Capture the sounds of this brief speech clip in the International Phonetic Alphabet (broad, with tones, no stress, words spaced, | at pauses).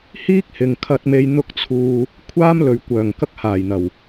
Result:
hiː˥k̚hɪ˨ŋ kʰɐ˧t̚me˧j n̪ʊ˧k̚t͡sʰuː˨ | kʷʰaː˥mlɵ˨ɥ kʷœː˨˩ŋkɐ˧k̚ haː˨˩jn̪ɐ˨˩w